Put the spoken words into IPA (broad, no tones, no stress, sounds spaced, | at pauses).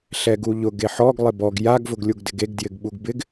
ɬ ɛ ɡ u ʎ ʊ ɡ e ħ ɔ ɡ lˠ ɪ b ɔ ɡ j a ɡ v ʊ ɡ lʲ u ɡ d ɪ ɡ e ɡ d j ɪ ɡ ɓ u ɡ b ɪ ɡ